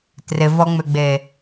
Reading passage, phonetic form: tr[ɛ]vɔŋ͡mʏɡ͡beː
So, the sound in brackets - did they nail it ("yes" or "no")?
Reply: no